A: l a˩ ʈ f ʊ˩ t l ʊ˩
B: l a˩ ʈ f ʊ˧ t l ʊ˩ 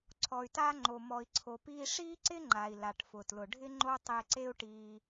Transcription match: A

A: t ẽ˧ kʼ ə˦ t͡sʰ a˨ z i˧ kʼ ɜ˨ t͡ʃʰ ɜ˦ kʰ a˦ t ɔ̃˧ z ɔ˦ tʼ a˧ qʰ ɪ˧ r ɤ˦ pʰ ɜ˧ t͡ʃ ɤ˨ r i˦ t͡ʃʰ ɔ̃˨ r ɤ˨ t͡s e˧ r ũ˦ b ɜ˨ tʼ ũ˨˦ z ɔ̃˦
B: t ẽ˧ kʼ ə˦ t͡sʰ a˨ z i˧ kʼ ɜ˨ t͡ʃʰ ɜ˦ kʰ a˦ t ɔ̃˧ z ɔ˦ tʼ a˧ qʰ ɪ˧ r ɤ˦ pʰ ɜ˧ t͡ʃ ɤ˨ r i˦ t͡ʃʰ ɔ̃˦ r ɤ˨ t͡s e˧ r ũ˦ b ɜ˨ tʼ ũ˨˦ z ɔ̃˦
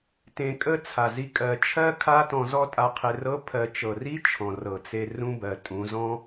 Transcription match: A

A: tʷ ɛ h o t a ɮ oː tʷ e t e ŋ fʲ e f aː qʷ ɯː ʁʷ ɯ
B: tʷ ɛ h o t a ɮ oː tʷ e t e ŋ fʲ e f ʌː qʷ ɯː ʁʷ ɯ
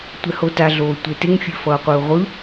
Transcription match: B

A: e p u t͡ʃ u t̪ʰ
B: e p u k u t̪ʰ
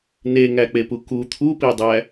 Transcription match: B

